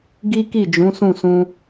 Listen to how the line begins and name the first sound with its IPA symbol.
ɡ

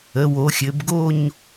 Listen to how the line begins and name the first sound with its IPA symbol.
ə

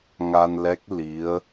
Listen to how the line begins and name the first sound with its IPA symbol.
ŋ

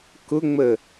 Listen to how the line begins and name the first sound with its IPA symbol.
k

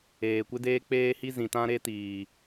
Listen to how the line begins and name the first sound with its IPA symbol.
eː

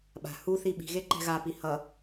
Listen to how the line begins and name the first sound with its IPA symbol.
ɓ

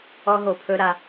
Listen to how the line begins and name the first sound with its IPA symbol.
ɔ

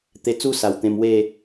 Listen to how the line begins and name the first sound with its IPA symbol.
t̪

